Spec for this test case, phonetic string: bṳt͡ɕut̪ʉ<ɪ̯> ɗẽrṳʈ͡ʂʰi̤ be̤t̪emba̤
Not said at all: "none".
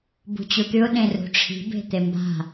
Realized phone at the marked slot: ʊ̯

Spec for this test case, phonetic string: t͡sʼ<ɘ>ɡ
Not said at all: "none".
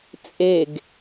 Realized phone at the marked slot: e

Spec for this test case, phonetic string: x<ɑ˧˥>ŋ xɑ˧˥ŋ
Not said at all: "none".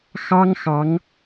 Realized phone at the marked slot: ɑ˥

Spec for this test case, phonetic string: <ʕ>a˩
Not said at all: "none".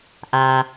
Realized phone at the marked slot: ʔ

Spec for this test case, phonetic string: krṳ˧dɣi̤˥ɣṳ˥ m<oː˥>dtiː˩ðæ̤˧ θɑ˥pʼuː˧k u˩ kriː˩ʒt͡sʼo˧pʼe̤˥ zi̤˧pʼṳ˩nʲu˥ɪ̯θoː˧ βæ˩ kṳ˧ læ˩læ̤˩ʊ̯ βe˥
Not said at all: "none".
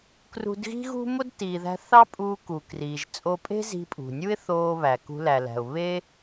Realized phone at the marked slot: o˥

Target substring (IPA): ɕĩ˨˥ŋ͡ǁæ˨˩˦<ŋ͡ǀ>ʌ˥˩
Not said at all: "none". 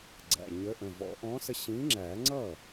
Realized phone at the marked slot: ŋ͡ǀ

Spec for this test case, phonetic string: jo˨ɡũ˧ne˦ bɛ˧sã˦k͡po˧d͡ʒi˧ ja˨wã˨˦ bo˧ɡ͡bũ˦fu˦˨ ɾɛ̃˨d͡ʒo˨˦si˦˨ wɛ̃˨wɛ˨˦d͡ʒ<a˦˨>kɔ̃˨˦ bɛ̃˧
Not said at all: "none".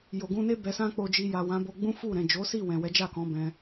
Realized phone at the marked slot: a˦˨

